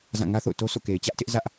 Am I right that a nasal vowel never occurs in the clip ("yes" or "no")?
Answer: no